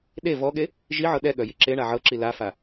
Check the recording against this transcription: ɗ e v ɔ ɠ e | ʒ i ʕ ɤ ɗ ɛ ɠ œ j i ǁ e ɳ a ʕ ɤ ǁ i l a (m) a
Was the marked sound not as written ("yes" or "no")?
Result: yes